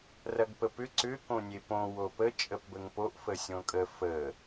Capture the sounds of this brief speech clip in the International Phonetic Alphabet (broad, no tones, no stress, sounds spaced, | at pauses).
r ɐ ɡ p ə p ʏ ǀ ʏ k õ nʲ e p õ w o p ə t͡ʃʼ ə p b ə ŋ p o ʔ f ə sʲ õ kʼ ə f ə